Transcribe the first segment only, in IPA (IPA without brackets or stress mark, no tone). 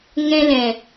ŋ